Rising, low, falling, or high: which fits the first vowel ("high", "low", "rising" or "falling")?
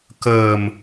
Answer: low